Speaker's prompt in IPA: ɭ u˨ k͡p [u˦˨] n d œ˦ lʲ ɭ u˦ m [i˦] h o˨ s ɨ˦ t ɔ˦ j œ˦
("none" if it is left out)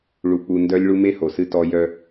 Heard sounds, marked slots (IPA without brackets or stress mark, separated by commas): u˨, e˦